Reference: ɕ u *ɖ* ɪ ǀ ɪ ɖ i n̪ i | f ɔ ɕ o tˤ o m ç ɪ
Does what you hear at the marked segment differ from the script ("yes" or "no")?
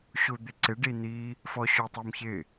yes